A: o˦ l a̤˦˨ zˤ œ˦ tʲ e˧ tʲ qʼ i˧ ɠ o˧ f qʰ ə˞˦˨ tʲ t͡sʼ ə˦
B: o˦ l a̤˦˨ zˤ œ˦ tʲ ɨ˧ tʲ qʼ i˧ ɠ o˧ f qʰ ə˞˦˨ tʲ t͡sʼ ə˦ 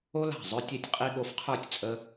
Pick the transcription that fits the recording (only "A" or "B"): A